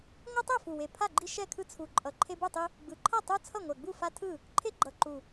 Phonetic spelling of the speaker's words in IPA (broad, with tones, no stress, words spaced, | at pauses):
ŋʷɯ˦tˤo˥˩fu˨˩we˨˩ pʰa˥˩ɡ͡ǃi˦ ʃɛ˥˩kʰɯ˦ t͡sʰu˨˩ǃʼʌ˨˩ ǃʰe˦bu˥˩tˤi˦ | ɡ͡bɯ˨˩ǃʰʌ˥˩ tˤu˦ t͡sʰʌ˥˩ŋʷɛ˨˩ɡ͡bu˥˩ fa˦ tʰɯ˥˩ | ǃʰe˦ɡ͡ǃʌ˨˩ǃu˨˩